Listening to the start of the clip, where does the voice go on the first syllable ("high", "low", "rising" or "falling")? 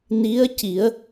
rising